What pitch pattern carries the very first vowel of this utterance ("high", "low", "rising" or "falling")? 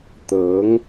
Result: rising